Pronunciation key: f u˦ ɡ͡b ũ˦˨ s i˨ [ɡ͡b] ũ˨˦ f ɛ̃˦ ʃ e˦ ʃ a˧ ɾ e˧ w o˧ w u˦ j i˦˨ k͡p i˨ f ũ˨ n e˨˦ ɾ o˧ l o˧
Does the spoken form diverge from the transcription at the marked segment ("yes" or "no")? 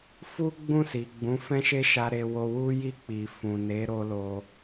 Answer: no